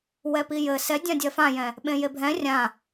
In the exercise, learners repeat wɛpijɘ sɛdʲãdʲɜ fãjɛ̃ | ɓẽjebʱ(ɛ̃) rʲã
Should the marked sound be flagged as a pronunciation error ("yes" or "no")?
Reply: no